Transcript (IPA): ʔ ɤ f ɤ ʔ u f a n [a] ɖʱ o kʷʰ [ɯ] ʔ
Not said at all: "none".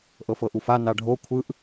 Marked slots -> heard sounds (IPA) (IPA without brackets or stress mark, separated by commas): a, ɯ